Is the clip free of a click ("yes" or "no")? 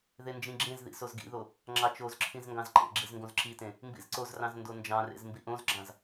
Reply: no